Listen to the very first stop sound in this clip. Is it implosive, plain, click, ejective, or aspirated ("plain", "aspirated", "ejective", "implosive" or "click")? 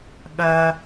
implosive